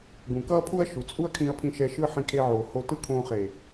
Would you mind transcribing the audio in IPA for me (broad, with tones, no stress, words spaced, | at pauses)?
ɡũ˨kʌː˦pʰu˦ɐ̯ ʃu˨t͡sʼu˦ɐ̯ kʰĩ˧ɐ̯pʰĩ˧ʃɛ˧ ʃɯ˧ ħĩ˧kʰe˧ʕoː˨ ho˧tɯ˦kʰõː˧χe˨